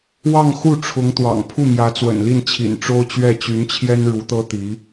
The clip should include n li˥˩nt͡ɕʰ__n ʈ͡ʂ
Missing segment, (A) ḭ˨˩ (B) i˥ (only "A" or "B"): A